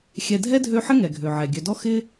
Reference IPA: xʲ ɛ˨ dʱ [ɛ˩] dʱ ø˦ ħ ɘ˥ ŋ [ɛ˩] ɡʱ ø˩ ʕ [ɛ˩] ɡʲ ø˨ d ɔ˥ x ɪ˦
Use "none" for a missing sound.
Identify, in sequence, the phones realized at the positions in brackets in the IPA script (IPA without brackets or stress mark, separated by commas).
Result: ɛ˥, ɛ˩, ɛ˩